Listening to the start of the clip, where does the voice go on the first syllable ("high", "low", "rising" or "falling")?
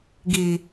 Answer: low